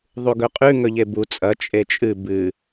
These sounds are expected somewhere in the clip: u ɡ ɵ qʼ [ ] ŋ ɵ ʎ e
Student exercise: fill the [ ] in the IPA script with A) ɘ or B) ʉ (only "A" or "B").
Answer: B